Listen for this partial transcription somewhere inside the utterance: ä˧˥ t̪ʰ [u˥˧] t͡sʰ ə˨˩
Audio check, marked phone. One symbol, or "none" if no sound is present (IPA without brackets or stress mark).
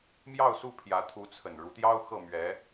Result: u˧˥